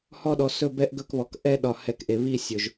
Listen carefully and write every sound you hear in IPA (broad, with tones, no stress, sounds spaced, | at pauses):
h ɔ˦˨ ɗ ɔ˩ s ɵ˦˨ b ɛ˦˨ ʔ ɡ ɵ˦˨ k β ɔ˩ k ʔ ɛ˦ ɗ ɒ˩ h ɛ˩ k ʔ e˩ β i˦˨ sʲ ɵ˩ ʒ